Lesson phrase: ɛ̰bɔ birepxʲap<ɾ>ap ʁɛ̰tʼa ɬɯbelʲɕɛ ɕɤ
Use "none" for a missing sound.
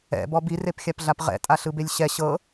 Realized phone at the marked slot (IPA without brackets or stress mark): ɮ